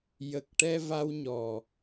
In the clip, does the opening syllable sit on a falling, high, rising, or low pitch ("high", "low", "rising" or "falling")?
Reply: low